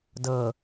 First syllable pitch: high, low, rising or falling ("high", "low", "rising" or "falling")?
low